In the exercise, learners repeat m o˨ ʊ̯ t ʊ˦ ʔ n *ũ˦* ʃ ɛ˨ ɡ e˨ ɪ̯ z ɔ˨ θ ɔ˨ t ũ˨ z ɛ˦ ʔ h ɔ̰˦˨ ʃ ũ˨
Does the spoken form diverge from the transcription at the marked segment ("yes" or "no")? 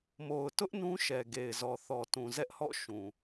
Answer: no